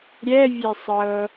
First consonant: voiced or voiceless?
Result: voiced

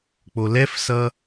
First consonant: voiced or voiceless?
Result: voiceless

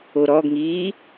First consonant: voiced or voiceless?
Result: voiced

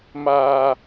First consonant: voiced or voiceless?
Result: voiced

